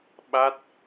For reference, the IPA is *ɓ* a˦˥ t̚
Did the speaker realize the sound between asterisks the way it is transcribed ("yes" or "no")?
yes